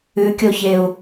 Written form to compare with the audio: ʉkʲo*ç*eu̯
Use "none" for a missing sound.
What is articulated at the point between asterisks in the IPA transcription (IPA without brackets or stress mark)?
ç